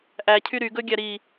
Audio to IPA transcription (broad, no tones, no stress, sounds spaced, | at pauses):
ʔ æ cʰ y ɾ y ɡ ɵ ɡʲ æ ɾ i